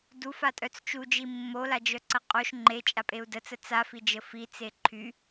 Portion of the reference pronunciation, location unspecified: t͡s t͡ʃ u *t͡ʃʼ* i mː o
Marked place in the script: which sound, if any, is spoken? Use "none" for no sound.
d͡ʒ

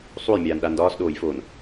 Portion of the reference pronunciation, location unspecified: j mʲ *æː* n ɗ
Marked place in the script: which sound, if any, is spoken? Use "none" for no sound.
aː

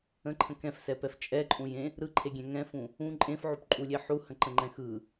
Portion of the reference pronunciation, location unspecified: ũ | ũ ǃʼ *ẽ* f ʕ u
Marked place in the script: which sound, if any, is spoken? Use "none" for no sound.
ẽ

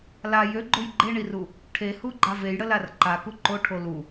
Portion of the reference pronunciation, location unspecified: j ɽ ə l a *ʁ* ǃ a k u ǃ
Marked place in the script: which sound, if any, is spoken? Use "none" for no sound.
r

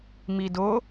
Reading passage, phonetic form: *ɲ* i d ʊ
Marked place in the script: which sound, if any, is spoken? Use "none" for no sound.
m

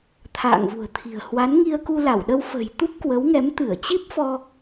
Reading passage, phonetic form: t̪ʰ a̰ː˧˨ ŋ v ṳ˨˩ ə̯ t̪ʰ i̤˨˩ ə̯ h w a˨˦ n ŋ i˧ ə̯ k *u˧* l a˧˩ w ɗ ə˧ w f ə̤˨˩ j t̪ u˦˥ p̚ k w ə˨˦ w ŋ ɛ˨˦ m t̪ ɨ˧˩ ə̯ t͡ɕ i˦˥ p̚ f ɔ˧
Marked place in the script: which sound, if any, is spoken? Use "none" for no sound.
u˧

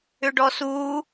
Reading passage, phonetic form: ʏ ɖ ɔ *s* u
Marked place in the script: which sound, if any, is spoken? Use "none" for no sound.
s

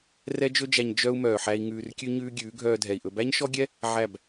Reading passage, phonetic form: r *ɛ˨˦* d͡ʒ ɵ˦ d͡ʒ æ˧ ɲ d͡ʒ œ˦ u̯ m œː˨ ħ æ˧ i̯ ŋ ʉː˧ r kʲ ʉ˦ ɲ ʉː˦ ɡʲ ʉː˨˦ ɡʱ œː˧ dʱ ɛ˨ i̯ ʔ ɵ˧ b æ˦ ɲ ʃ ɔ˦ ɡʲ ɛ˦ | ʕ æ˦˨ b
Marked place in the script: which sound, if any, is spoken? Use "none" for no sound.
ɛ˦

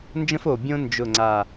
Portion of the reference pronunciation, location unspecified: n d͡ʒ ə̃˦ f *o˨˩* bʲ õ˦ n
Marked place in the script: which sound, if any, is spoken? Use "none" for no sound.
o˨˩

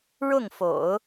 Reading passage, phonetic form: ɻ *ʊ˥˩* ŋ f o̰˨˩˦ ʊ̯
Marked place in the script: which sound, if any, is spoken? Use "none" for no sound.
ʊ˥˩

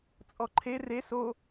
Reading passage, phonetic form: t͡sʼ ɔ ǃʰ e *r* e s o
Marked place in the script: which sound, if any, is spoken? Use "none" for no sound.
r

